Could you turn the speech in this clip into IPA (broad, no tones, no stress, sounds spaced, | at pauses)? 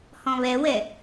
h ɔ̃ β ɛ w ɛ